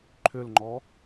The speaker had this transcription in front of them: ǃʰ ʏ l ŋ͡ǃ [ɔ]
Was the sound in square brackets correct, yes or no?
yes